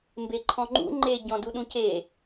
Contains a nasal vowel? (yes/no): yes